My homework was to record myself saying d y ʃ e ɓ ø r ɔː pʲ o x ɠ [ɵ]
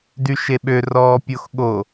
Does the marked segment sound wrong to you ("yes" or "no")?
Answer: yes